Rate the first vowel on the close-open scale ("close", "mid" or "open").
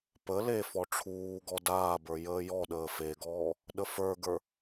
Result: mid